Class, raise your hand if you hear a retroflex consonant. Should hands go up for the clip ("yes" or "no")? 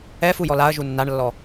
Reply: yes